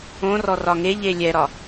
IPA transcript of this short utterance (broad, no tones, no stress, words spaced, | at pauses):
õrɔ rɒŋeʎe lʲɛɾɒ